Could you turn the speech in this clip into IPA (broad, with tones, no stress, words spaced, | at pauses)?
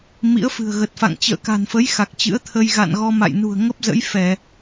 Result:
mḭ˧˥ə̯fɨ̤˨˩ə̯ɣə˨˩t̚fa̰˧˨ŋ t͡ɕə̰ː˧˨ka̤˨˩nfə˨˦j xa˨˩k̚t͡ɕɨ̰˧˥ə̯t̪ʰə˧j ɣa̰˧˨nɣɔ˧ ma̰˧˨jnṳ˨˩ə̯ ŋə˦˥p̚zə̰˧˥jfɛ˧˩˨